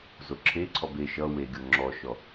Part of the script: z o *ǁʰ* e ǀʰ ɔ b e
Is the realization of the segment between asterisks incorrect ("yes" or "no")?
no